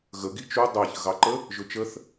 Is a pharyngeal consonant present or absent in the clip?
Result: absent